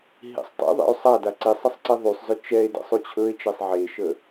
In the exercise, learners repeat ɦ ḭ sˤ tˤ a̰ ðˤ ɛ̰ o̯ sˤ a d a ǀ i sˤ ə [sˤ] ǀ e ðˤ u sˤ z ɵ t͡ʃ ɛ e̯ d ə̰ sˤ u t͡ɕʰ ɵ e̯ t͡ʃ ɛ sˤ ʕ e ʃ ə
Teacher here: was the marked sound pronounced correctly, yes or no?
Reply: yes